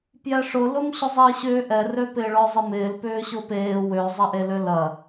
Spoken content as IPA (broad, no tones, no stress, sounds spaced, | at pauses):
p j ɛ ʂ ʊ l ʊ m ɕ ʊ zˤ ɪː ɕ ʏː ʔ ɛ r ø p ɪː ɭ ɔ zˤ ɪ m ɪː l p ʏː ɕ ʊ p eː w ø zˤ ɐ ʔ e l ø l ɐ